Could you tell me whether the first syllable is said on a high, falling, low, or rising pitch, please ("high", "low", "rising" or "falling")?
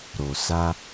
low